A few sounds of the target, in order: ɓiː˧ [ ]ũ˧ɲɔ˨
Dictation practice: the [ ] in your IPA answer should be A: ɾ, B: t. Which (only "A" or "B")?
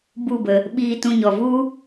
B